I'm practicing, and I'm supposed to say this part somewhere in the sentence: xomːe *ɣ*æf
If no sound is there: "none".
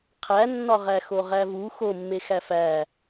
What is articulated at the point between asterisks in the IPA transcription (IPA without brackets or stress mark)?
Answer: x